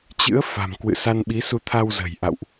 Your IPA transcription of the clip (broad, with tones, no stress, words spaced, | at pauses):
t͡ɕɨ̰˧˥ə̯ fa̤˨˩mkwɨ̰˧˨sa˧nɓi˨˦ su˧t̪ʰa˧w zə̤˨˩jʔa̰˧˨wʔ